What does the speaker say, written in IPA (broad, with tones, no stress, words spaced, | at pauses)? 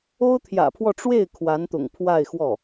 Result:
o˥ʊ̯t̪ʰjä̰˨˩pʰwɔ˥˧ ʈ͡ʂwe˥˩ɪ̯ kʰwa˧˥nt̪ʊ̰˨˩ŋ pʰwa˥˧ɪ̯xwɔ˥˩